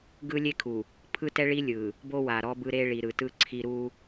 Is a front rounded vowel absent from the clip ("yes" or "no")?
yes